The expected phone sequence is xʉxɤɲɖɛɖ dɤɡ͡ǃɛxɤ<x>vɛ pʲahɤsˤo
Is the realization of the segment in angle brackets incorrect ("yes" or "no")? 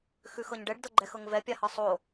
yes